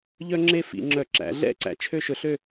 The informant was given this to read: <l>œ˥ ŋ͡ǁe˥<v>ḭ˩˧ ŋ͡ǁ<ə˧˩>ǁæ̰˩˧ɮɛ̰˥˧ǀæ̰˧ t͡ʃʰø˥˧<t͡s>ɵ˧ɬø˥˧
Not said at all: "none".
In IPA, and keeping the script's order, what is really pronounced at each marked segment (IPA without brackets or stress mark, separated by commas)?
ʎ, f, œ˧˩, ʃ